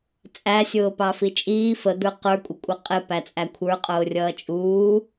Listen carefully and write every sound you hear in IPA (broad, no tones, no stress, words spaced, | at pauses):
t͡sʼæ sʲʊːpɑfit͡ʃʼiː fəd̪ə˞ qə˞kʷʼɪkʷʼʌ qʼɪ pæt͡sʼækʷʰə˞qʼʊː rʲʌːt͡ʃʼuː